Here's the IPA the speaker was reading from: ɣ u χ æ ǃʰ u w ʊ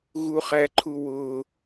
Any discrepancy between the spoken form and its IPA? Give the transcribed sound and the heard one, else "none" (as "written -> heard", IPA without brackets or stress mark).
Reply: none